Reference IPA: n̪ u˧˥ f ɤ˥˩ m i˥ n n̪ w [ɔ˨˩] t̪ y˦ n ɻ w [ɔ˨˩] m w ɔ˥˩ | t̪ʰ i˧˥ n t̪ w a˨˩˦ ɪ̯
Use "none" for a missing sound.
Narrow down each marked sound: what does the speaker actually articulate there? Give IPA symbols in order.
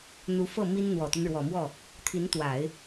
ɔ˨˩, ɔ˨˩

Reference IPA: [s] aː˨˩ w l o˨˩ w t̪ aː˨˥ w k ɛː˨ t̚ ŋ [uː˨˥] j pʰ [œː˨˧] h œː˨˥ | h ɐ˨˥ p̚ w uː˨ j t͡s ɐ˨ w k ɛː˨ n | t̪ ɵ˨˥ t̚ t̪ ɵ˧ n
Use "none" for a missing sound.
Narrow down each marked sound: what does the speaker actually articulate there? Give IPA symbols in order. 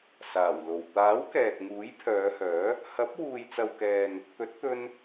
s, uː˨˥, œː˨˧

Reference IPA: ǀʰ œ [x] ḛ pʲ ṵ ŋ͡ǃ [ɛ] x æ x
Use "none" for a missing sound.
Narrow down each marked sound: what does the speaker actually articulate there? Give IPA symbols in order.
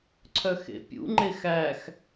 x, e

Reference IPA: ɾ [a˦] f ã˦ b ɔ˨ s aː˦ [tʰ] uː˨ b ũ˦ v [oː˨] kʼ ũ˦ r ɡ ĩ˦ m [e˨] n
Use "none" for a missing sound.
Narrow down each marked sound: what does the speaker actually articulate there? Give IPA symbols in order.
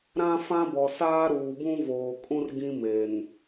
ã˦, ɾ, oː˨, e˨

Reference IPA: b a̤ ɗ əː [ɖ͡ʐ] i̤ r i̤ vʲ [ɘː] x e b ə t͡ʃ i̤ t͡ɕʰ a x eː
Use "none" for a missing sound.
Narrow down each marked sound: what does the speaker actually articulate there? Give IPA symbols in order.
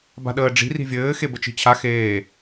ɖ͡ʐ, ɘː

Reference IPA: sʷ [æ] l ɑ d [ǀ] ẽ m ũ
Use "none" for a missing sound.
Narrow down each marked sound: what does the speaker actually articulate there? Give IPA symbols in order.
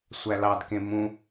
æ, k

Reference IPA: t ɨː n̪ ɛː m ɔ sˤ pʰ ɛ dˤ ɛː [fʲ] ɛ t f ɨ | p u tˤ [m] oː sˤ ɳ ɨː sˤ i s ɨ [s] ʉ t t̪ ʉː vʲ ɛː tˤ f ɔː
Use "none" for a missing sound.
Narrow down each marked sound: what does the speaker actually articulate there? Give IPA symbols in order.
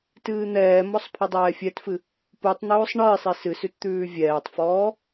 fʲ, n̪, s

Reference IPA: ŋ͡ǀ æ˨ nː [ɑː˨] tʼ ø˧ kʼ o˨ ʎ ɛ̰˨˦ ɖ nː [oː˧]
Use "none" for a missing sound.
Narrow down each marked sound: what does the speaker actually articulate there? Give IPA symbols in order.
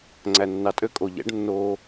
ɑ˨, oː˧

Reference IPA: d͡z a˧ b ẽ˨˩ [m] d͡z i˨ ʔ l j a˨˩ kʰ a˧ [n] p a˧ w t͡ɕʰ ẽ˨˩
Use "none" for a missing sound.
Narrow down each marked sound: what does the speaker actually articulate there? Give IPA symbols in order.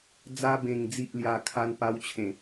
ŋ, n

